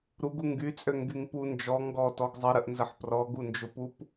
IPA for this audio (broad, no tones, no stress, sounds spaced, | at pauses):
ɾ u ɡ u ŋ ɡ y t͡sʼ ø ŋ ɡ y ŋ p u n d͡ʒ ɔ ŋ ɡ ɔ t ɔ ɡ zˤ ə ɾ ə ʔ n z ə ħ p r ɔ ɡ u n d͡ʒ ʊ p u p